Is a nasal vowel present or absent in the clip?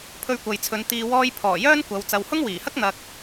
absent